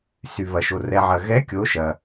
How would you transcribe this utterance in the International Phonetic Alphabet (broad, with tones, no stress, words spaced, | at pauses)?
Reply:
sy˨βɐ˨ʃo˨ rɛ˨ʕɐ˨ɣɛ˧˥ kʲo˧˥ʃɐ˨